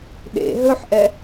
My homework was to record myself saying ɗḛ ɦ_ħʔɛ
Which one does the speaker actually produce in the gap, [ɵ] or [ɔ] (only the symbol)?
ɵ